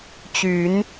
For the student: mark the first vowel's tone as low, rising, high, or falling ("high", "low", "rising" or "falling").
rising